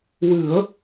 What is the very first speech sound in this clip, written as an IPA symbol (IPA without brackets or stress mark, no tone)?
w